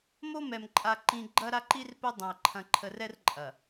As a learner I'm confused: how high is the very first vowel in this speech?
mid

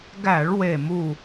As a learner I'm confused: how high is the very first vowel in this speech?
low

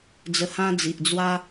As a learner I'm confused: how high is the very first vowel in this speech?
mid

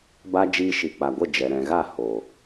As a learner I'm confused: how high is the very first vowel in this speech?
low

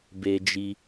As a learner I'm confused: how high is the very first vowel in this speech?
mid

